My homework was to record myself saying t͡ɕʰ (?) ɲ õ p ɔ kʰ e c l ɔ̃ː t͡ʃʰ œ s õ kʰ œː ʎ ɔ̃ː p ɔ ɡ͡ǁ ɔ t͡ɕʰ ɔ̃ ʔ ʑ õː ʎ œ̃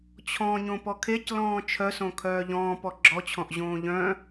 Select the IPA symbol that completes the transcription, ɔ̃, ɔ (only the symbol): ɔ̃